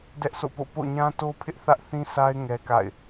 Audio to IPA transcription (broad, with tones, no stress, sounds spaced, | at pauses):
d ɛ˦ ʔ s o̰˦˨ p o̰˦˨ p o̰˦˨ ɲ ã˦ t o˦ pʰ ɪ˦ ʔ θ ä˦ ʔ θ ĩ˦ s a˦ ɪ̯ ŋ ɛ˦ k a̰˦˨ ɪ̯